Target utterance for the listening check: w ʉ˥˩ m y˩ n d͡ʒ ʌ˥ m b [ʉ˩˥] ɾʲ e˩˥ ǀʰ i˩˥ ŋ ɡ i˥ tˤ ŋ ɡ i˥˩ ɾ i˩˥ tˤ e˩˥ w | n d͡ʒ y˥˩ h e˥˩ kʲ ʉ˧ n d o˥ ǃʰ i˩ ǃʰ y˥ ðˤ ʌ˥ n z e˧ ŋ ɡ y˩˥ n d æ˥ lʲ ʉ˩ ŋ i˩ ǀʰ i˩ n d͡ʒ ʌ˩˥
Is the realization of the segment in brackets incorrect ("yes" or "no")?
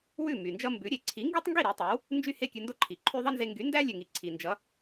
no